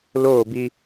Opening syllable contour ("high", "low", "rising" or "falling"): falling